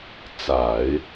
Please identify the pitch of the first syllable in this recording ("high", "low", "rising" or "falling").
low